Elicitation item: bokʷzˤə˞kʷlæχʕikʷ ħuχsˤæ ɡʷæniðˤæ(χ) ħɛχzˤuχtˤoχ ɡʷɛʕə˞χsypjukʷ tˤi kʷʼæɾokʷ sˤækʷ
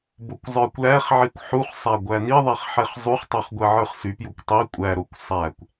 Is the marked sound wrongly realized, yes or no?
no